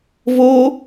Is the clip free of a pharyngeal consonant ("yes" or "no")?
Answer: yes